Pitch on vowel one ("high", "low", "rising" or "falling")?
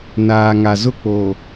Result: low